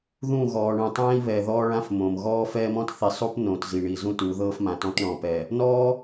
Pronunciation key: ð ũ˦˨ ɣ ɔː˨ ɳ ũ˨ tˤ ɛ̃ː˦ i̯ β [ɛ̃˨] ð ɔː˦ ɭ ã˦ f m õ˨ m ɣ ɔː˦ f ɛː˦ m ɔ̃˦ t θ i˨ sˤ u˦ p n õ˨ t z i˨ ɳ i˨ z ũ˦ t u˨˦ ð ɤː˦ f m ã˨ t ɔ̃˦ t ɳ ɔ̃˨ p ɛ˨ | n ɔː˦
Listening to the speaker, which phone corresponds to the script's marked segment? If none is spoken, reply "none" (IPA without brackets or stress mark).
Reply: ɛ˨